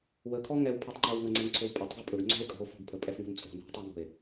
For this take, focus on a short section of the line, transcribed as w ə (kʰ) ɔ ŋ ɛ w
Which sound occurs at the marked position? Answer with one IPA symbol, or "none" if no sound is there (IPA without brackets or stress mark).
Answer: kʰ